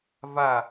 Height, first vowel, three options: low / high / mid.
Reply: low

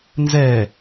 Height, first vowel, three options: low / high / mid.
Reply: mid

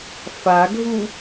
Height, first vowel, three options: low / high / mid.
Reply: low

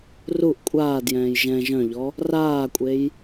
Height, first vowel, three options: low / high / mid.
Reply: high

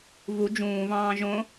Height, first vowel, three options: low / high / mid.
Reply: high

